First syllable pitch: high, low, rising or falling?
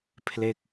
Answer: falling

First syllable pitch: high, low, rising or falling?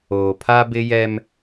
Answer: low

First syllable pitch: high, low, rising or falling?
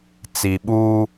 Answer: low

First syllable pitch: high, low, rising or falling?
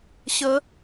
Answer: rising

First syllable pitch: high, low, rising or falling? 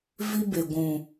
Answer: high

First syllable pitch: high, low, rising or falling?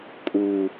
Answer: low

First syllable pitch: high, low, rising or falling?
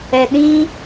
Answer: low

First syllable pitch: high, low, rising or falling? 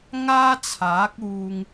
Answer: high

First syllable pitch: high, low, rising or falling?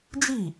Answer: falling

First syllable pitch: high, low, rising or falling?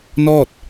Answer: falling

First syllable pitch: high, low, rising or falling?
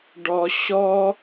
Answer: high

